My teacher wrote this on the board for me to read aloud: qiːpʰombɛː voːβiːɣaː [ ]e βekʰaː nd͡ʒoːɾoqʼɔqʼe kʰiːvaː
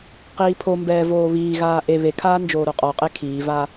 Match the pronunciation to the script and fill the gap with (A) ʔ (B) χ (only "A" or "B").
A